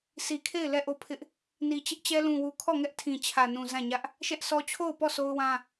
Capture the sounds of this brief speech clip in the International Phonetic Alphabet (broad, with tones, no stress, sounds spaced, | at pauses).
s i˨ kʰ e˦˨ ɪ̯ l ɛ˦˨ ʔ o˦˨ pʰ ɪ˦ ʔ | n i˨ t͡ɕ ɪ˦ ʔ t͡ɕ ɛ˦ l ũ˨ w u˨ kʰ ɔ˦˨ ŋ ɛ˦ ʔ tʰ ĩ˨ t͡ɕʰ ä˨ n ũ˨ z ã˦˨ ɲ ä˦ ʔ | ʃ ɛ˦ ʔ sʰ ɔ˦ t͡ɕʰ o˦˨ ʊ̯ p ɔ˦˨ sʰ o˦ ʊ̯ w ã˦